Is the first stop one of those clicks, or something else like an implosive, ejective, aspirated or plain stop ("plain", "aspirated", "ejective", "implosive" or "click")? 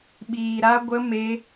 implosive